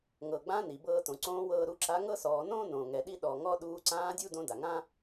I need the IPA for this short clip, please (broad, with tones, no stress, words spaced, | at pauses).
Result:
ŋɤ˩ɡ͡bã˧˥ ni˩bɤː˧tõ˩ ǀõː˧˥wɤː˧ɾu˧ǁa˧˥ ŋɤ˥sɔː˩˧nõː˥ nõː˩ŋɛ˩ ɗi˥ɗɔ˩ŋɔ˥ ɗuː˧ ǀãː˧˥ dʲu˥ dõ˧˥da˩ŋã˥